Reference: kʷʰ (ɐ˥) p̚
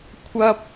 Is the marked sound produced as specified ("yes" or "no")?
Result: yes